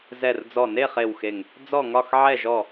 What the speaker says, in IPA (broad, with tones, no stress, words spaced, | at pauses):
zɛ˧˩rd͡zɔ˧˩ ne˥˨χe˧˩wxe˧˩ŋ | d͡zɔ˥˨ŋɒ˥˨x ʕɛ˥˨ʒɔ˥˨